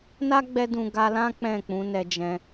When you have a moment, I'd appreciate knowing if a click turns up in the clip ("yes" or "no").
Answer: no